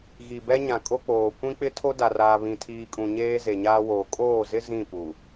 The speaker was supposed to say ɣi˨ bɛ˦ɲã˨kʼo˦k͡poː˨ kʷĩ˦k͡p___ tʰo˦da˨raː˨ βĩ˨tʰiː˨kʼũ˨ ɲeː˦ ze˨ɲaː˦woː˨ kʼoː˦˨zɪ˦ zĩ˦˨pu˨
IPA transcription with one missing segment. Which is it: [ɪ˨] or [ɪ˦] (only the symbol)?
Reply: ɪ˦